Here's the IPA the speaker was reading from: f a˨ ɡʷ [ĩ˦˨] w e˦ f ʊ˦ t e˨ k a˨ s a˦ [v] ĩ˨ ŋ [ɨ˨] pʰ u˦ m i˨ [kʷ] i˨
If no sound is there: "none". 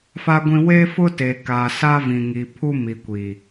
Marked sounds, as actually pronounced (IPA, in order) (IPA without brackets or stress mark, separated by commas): ĩ˨, v, i˨, kʷ